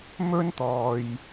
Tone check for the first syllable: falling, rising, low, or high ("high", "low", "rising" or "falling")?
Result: high